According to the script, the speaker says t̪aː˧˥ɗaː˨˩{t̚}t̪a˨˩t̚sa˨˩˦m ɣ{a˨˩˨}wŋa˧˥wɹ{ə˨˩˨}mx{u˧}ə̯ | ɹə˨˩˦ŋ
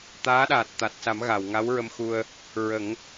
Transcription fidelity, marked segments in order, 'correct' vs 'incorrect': correct, correct, incorrect: ə˧, correct

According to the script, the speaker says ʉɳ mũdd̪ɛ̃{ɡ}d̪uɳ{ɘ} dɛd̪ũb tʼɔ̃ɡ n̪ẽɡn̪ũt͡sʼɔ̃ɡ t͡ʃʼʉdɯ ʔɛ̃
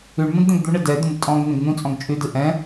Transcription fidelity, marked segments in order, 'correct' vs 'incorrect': correct, correct

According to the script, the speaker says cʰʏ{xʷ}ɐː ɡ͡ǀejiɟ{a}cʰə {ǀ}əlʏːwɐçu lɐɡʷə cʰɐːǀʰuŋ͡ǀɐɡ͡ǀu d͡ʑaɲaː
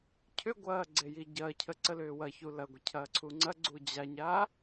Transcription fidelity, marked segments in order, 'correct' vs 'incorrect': incorrect: ɡʷ, incorrect: ɐ, correct

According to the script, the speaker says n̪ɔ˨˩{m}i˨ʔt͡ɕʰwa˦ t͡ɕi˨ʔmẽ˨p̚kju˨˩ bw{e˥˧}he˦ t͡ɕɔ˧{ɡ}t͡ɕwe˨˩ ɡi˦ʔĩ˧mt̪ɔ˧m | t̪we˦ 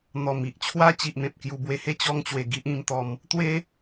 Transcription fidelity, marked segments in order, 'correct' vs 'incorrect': correct, incorrect: e˧, incorrect: ŋ

